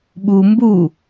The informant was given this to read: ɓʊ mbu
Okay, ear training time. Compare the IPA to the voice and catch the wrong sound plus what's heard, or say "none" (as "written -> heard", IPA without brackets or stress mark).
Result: ʊ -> u